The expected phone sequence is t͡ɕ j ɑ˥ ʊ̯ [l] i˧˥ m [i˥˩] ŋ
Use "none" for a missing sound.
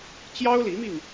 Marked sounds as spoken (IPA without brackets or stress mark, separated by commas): l, i˧